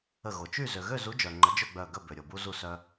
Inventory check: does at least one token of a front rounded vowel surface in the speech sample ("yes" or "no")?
yes